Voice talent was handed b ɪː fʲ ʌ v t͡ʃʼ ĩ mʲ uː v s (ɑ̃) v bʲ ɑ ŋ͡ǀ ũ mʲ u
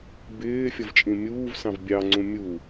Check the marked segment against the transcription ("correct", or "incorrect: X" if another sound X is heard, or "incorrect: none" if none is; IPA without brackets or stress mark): correct